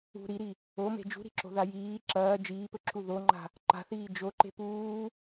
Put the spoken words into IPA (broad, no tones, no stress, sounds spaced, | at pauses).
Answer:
ṳ ɾ i ɾ i | o m e̤ d͡ʒ ṳ ɾ i̤ ǁ o̤ ð a j iː ǁ ɐː d͡ʒ iː p ɵ ǁʰ u ð o ŋ͡ǃ a̤ | ǃ a̤ θ iː d͡ʒ o ǃ e̤ p uː